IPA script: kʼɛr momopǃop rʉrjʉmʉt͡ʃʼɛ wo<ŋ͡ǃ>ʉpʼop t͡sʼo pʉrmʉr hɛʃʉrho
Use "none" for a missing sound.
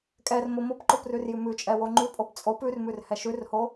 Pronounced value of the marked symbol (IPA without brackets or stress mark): ŋ͡ǃ